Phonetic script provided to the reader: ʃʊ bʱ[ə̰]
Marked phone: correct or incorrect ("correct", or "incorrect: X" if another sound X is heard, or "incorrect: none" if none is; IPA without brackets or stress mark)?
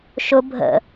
correct